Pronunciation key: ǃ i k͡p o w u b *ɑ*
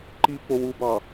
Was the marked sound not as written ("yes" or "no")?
no